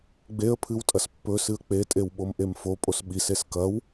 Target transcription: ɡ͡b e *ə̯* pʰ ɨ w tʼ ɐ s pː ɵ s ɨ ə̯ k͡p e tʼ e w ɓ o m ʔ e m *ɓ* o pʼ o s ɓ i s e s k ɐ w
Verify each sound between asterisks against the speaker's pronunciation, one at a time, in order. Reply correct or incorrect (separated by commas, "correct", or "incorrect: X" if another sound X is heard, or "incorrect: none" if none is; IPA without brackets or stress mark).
correct, incorrect: f